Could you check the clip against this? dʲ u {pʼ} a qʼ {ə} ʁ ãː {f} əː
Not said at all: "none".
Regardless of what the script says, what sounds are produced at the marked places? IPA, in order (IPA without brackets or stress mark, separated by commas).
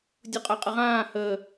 qʼ, ə, h